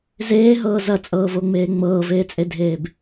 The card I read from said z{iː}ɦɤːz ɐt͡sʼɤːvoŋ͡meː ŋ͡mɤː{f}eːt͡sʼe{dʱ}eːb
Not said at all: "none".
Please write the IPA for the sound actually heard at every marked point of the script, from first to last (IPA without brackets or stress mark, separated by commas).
eː, v, dʱ